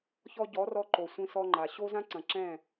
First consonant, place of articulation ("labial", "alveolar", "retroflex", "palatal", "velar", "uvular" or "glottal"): palatal